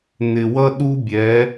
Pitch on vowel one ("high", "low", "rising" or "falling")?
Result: low